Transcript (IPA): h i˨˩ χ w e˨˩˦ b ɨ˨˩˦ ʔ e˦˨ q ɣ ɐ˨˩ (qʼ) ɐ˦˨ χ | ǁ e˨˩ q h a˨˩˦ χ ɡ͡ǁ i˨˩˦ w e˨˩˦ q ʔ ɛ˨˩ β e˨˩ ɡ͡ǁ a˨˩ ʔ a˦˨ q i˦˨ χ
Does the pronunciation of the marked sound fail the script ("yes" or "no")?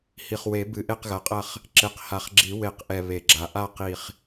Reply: no